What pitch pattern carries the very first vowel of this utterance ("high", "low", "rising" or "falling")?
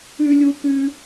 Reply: high